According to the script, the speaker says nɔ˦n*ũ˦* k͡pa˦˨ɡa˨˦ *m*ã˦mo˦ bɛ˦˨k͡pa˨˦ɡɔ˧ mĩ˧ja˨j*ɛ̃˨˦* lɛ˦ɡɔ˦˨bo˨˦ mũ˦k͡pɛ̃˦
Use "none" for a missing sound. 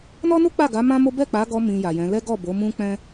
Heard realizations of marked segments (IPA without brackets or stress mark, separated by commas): u˦, m, ɛ̃˨˦